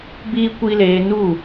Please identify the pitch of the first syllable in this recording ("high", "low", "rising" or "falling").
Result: high